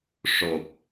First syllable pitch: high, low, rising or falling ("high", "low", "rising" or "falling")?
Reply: low